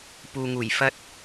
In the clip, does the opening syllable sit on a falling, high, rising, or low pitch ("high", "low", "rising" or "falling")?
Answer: low